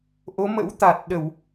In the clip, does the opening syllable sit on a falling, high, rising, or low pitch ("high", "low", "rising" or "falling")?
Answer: rising